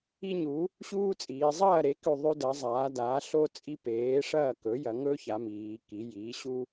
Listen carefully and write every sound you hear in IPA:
i˥ ɲ u˩˥ | ɕ uː˥ t͡sʼ iː˩˧ zˤ ɐː˥˨ ɾ e˩˥ k ʉ˥˨ ðˤ ʉ˥ d ɐ˩˥ zˤ aː˩˥ d aː˩˥ ɬ o˥ t͡sʼ i˥ p eː˩˥ ʂ ɐː˥˨ k ɵ˩˥ j ɐ˩˧ ŋ ɵː˥ ç a˩˧ m iː˩˧ k i˩˥ j iː˩˥ ɕ u˥

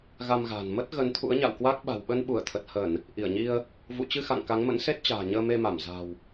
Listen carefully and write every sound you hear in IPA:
ɣ a˧ m ɣ a̤ː˨˩ n m ə˦˥ t̚ ɣ ə˨˦ n t̪ʰ ṵ˧˥ ə̯ ɲ a̰˧˨ w k w a˦˥ k̚ ɓ a̤˨˩ w ɓ ə˧ n ɓ u˧˩ ə̯ t̪ʰ ə˨˩ t̚ h ə˧˩˨ n | ʔ i˧˩ ə̯ ɲ i˧ ə̯ | v ṵ˧˨ t͡ɕ ɨ˧ x a̰˧˨ ŋ k a˨˦ ŋ m ə̰˧˥ n s e˦˥ t̚ t͡ɕ a̤ː˨˩ ɲ əː˧ m e˧ m a˧˩ m z a̤˨˩ w

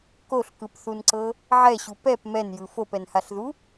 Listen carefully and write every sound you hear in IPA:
k o ɬ k ɯ p θ u n ǀ ɤ | ʕ ɛ ɕ u p ɛ p m ɛ n j ɯ f o p ɛ n h a ɬ ð u

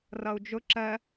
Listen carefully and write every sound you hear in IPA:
r ʌ u̯ d͡ʒ ʊ ǁ ɜ

